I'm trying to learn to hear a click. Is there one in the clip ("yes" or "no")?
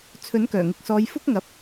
no